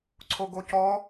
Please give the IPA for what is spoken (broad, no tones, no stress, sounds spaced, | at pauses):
ǀʰ o ɡ o c ɔ